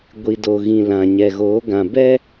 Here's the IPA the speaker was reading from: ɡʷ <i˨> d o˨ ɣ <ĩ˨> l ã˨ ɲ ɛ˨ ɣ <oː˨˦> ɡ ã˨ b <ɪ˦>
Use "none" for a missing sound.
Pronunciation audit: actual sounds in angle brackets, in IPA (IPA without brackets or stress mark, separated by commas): i˨, ĩ˨, oː˨˦, ɛ˦